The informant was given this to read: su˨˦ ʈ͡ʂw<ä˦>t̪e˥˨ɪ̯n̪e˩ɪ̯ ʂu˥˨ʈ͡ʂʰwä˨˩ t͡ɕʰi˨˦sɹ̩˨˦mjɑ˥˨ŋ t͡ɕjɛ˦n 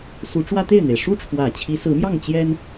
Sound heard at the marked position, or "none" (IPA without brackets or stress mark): ä˦